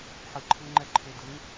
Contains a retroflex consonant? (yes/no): no